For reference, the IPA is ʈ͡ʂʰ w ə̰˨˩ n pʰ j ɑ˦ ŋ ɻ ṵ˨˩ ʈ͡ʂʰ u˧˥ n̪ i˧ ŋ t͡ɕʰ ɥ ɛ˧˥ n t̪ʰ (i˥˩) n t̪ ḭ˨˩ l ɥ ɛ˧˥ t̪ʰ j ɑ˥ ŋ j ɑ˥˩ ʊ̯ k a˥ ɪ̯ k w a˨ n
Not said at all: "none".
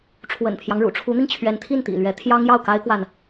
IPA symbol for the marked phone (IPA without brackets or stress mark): i˥˩